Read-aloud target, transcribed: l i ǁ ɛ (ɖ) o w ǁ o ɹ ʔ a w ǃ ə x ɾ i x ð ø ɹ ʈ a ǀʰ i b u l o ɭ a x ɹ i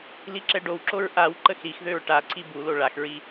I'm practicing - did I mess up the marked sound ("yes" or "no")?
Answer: no